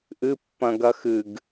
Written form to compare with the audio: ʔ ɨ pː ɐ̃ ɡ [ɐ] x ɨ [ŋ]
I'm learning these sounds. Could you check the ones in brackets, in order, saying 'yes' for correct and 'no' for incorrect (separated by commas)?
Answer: yes, no